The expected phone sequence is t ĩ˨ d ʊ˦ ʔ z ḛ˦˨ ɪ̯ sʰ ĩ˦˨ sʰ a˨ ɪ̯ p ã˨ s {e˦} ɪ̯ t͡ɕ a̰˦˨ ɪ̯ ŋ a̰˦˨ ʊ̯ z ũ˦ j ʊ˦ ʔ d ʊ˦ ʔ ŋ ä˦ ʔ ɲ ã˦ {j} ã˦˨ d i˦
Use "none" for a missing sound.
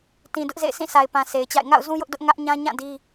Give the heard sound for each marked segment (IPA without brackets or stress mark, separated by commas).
e˨, ɲ